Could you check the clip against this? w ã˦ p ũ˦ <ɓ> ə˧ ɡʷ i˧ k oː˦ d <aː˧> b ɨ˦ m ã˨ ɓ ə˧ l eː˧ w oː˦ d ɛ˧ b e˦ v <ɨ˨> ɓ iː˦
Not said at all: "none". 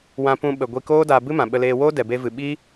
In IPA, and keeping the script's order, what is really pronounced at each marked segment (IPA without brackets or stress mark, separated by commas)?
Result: ɓ, aː˧, ɨ˧